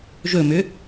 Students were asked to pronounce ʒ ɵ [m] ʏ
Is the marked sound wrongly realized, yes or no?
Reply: no